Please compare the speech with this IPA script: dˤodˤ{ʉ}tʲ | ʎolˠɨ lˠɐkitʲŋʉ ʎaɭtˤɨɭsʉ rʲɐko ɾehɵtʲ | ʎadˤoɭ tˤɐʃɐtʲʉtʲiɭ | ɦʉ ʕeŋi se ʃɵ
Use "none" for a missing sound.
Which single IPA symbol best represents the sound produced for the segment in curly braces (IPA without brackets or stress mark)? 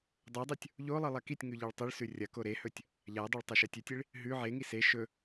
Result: ʉ